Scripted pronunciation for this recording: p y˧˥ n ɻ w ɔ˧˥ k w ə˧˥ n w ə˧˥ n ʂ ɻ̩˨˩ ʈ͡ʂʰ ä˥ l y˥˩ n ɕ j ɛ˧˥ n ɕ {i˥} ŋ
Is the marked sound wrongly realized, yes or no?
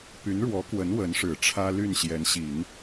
yes